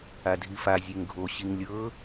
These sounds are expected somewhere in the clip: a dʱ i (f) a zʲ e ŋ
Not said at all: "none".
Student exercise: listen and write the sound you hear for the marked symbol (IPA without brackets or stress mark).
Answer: f